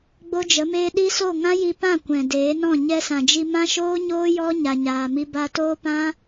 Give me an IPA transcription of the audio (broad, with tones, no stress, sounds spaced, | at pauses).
ɡ͡b o˦ d͡ʒ ə˨˦ m eː˦ ɗ i˦ s o˦˨ ŋ ã˦ j i˧ p ã˦˨ kʷ ɛ̃˨ d eː˨˦ n ɔ̃˦˨ ɲ ɛ˧ s ã˨ d͡ʒ i˧ m ã˦ ʃ oː˦ ɲ oː˦ j ɔ˦ ɲ a˧ ɲ aː˧ m i˦ b a˧ t oː˦ p ã˦